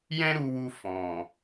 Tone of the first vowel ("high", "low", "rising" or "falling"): high